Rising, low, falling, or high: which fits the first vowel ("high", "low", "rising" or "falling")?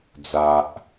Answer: low